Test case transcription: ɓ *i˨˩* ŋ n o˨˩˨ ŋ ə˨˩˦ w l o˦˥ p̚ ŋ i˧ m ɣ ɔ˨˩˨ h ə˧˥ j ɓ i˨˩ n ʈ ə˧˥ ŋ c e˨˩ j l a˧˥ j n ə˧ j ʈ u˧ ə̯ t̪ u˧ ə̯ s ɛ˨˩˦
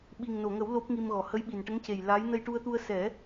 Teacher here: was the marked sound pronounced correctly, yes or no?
yes